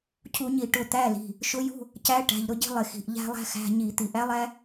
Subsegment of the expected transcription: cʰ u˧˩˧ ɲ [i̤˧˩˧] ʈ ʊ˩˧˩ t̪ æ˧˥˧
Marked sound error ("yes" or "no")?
yes